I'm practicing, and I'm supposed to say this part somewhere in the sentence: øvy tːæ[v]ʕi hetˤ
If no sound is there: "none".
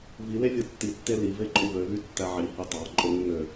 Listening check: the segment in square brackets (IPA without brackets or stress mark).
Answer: none